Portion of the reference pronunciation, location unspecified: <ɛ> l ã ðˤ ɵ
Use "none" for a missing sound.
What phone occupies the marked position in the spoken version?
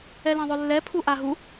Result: ɛ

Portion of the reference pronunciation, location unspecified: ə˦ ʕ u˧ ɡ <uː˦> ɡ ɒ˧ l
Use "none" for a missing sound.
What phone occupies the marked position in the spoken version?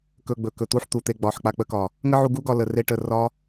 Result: u˦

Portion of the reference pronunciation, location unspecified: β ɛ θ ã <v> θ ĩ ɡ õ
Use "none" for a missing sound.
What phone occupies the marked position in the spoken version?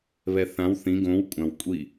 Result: w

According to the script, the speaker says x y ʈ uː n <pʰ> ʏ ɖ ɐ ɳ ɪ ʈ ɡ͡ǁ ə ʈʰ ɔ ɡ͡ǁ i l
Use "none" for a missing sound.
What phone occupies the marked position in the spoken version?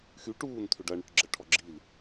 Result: tʰ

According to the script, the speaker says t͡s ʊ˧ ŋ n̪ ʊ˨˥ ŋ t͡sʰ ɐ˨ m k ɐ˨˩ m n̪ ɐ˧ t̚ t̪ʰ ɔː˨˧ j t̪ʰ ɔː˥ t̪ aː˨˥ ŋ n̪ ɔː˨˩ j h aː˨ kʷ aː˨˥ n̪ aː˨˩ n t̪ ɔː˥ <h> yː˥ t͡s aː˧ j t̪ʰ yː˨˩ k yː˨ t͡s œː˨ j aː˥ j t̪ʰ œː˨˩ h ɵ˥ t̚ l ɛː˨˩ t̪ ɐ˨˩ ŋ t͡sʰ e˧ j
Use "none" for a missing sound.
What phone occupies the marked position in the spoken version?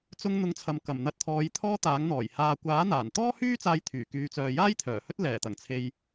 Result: h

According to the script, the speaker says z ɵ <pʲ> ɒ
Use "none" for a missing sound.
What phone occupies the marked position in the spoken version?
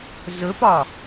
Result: p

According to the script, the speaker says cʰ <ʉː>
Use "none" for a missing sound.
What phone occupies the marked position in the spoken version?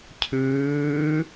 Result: ʉː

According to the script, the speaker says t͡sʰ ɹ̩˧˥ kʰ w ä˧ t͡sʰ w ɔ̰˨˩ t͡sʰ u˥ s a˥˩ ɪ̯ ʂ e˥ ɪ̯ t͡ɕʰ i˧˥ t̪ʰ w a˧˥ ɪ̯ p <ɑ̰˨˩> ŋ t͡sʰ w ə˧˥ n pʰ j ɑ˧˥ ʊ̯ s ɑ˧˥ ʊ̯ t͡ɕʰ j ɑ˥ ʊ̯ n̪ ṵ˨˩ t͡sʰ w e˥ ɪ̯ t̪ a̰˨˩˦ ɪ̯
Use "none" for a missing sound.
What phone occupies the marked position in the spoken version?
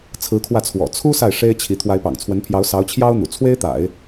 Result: ɑ̰˨˩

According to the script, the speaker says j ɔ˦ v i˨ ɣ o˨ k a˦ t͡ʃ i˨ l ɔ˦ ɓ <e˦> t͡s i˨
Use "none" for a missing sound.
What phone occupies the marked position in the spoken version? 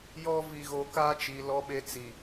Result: e˦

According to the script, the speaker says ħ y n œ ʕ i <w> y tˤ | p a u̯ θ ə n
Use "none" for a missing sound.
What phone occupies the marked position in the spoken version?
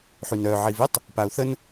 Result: v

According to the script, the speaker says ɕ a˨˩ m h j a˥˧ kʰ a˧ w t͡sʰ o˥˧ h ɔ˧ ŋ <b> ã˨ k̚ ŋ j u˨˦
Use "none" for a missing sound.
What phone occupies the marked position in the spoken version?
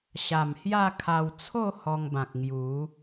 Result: b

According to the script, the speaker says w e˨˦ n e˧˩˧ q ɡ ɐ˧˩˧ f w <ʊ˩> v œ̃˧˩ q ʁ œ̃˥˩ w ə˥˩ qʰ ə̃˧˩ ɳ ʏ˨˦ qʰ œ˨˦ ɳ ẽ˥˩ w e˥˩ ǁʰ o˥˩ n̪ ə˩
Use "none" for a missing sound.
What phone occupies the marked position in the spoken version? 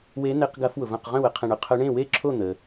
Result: ʊ˩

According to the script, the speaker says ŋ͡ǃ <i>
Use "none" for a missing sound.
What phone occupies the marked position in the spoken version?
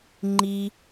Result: i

